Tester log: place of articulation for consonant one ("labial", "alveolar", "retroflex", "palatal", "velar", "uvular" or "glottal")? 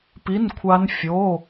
labial